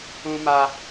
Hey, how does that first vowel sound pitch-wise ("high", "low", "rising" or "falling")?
high